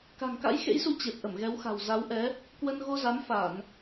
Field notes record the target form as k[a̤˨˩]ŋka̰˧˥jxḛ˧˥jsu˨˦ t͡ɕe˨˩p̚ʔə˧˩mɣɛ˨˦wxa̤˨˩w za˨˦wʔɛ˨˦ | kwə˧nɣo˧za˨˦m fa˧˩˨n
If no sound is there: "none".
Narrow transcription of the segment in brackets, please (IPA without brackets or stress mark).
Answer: a̤˨˩